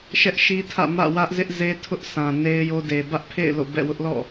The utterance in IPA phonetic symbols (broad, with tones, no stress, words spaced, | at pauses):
ʃɛ˦ʔʃi˦tʰä̰˦˨ mä̰˦˨wä˦ʔzɪ˦ʔ ze˦tʰʊ˦ʔ sã˨ne˦ɪ̯ jo˦de˨ bä˦ʔpʰḛ˦˨ɪ̯ lo̰˦˨bɛ̰˦˨wʊ˦ʔlɔ̰˦˨